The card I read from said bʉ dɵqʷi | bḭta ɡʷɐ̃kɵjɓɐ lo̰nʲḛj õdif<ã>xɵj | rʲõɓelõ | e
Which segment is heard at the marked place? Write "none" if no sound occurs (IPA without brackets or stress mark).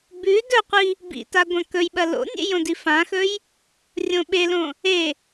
ã